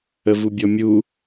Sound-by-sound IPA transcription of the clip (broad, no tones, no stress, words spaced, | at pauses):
əvubʲɔmʲu